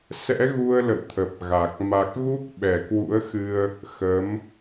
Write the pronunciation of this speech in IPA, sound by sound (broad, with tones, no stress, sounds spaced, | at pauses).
s ɛ̰˧˥ ɣ u˧ ə̯ l ə̰˧˨ w t̪ʰ ə˨˩ p̚ ɣ a˨˩ k̚ m a˨˩ k̚ ɣ u˦˥ k̚ ɓ ɛ˧˩ k w ṵ˧˥ ə̯ x ɨ˧ ə̯ | x ə˨˦ m